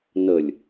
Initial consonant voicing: voiced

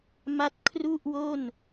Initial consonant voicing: voiced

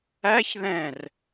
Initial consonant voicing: voiceless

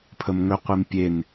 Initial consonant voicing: voiceless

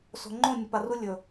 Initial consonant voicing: voiceless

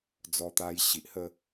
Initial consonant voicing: voiced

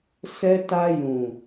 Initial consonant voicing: voiceless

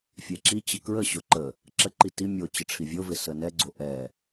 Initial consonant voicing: voiceless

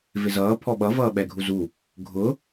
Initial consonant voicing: voiced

